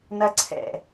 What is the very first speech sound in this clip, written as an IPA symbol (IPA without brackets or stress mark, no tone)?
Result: n